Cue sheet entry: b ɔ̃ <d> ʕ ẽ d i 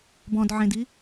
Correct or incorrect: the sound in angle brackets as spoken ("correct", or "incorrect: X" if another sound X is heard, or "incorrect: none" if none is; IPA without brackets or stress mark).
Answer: correct